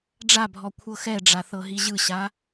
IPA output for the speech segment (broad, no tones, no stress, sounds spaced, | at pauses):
ɖ͡ʐ a bʱ ɔ kʷʰ ɤ x ɛ ɖ͡ʐ a θ ɤ ɦ i ʑ ɯ ɕ a